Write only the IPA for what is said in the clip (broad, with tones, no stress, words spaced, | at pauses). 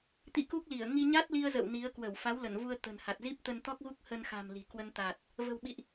t̪ḭ˧˥ku˦˥k̚li˧˩ə̯ ŋi˧ɲa˦˥t̚li˧ə̯zə̰˧˨w ni˨˦ə̯ kwə˧˩wfa˨˦wlə˧˩nvu˧ə̯ t̪ə̤˨˩n ha˨˩t̚ zi˦˥p̚t̪ə˧nt̪ɔ˦˥k̚ɣu˦˥k̚ hə˧nxa̤˨˩m li̤˨˩ kwə˧nt̪a˨˩t̚ | və̤˨˩wɓḭ˧˨ʔ